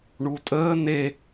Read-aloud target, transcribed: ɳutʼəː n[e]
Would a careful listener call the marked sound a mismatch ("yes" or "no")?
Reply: no